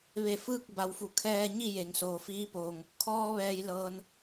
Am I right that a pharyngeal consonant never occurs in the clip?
yes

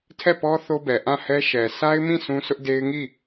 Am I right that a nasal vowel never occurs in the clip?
no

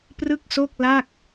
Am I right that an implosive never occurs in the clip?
yes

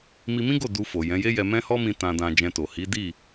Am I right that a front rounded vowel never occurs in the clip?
yes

